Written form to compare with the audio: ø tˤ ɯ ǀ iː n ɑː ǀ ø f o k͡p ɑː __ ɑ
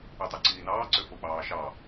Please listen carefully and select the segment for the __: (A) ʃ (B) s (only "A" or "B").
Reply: A